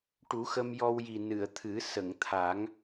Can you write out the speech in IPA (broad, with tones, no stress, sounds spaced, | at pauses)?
ʈ u˨˩˦ x ə˧ m j ɔ˧ w j i˨˩ n ɨ˨˩˨ ə̯ t̪ʰ ɨ˨˩˦ s ə˨˩˨ ŋ t̪ʰ a˨˩˦ ŋ